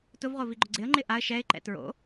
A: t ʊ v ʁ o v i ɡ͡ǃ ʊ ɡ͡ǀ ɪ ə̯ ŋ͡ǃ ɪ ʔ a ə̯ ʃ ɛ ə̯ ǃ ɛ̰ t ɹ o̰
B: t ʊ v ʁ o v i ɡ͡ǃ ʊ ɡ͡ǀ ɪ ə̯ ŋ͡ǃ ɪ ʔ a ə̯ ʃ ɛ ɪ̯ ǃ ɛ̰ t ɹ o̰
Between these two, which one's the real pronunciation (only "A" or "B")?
B